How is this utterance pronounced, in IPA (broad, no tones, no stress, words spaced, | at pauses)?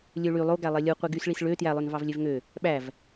lʲøɭy lˠo ɡælˠelʲɯ qʷiɡysɭis ɭø tjælˠøn vɑvlʲøvŋø | ɓæv